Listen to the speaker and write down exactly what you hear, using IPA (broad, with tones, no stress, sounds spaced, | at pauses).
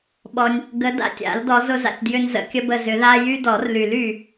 ɓ ɔ˨ nʲ | ɡ ə˨˦ d a̰˦˨ tʲ a̰˨˩˦ l d ɔ˨˦ z ʊ˦ z a̰˨ tʲ d j ʏ˦ n z ə̰˨˩˦ kʲ ə˦ b ə˦˨ z ʏ˨˩˦ ð a˦ j y˦ d ɔ˨˩˦ r l y˨˩˦ l y˦˨